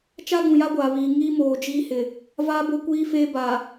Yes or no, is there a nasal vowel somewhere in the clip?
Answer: yes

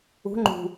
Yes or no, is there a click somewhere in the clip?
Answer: yes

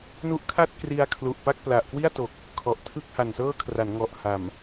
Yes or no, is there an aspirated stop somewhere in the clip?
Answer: yes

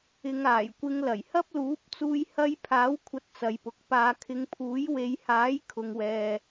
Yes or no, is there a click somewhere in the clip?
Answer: no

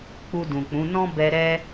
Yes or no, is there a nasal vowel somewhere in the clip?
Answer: yes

